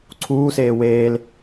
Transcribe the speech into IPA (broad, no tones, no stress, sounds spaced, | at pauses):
ǀʰ uː s eː w eː l